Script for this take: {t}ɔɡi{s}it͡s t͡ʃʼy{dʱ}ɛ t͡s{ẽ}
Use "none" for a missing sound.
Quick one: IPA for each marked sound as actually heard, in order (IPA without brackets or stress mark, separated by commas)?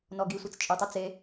n, sʷ, tˤ, e